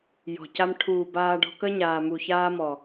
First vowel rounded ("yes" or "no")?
yes